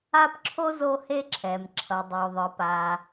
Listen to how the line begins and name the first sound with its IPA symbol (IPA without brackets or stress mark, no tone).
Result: a